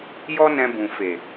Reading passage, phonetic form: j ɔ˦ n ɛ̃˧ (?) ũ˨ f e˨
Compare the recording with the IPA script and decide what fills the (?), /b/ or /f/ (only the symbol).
b